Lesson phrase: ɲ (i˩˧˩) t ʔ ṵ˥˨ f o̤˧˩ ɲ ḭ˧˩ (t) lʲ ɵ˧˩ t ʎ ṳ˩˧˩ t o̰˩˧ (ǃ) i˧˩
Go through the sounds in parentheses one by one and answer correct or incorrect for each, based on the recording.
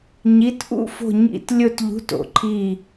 correct, correct, incorrect

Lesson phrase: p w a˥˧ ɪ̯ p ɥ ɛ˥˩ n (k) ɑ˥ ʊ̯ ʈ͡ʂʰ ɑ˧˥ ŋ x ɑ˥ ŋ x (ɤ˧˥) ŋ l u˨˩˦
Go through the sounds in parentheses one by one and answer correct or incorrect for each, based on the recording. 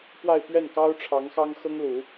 correct, incorrect

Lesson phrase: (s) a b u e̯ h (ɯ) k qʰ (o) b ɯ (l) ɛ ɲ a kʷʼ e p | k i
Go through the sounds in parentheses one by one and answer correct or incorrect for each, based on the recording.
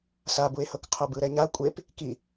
correct, incorrect, incorrect, incorrect

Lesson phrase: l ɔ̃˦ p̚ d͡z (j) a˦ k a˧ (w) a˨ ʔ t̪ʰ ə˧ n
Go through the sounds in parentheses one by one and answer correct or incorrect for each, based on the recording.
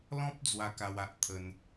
incorrect, correct

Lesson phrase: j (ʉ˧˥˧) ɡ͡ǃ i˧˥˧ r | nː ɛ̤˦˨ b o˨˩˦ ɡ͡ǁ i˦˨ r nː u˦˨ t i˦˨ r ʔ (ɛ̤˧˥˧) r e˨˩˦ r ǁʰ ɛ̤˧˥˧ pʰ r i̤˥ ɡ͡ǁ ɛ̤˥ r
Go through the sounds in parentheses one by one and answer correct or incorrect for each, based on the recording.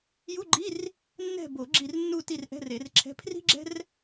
incorrect, correct

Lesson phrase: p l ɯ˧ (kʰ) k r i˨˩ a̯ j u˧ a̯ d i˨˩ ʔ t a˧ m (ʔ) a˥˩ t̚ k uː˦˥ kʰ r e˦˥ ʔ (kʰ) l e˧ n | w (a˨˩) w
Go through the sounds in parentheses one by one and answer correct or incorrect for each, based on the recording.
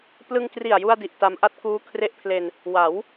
incorrect, correct, incorrect, incorrect

